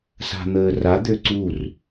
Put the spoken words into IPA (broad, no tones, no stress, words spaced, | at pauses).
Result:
sa̤n̪əːra d̪øǀur